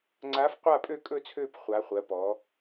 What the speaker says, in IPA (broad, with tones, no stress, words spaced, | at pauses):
ŋ͡ǀa˧˥f qʷa˦˨pʼø˦˨kʼɵ˦˨t͡sʰøː˦˨p χʷa˧˥χʷɜ˧˥pɔ˧˥